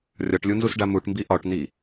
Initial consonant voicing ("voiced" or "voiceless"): voiced